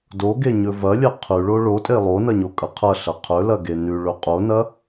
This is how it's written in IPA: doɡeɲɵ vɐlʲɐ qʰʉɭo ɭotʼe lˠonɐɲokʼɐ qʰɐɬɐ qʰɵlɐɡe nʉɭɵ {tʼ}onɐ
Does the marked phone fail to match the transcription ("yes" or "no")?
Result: yes